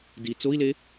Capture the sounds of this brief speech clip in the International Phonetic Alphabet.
d i t͡s o i̯ l e

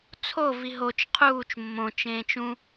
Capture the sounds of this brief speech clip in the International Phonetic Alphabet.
t͡sʰ o v i ɦ o t͡ʃ qʰ uː t͡ʃ mː õ t͡ʃ ẽː t͡ʃ ũ

